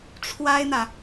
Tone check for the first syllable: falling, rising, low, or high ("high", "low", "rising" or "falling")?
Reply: high